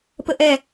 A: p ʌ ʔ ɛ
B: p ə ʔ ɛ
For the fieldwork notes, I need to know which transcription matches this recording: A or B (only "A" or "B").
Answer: B